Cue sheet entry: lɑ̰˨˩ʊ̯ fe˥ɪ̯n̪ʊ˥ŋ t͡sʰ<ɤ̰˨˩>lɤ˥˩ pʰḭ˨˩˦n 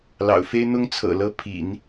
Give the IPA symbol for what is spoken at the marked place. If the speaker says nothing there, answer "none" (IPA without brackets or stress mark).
ɤ̰˨˩